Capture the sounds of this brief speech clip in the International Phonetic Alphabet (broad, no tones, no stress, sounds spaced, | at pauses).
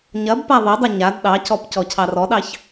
ɲ ɐ b p a ðˤ ɛ dˤ ɐ ɲ a d ɗ ɑ c ɔ p c ɔ cʰ ɑ r ɔ ɗ ɑ ç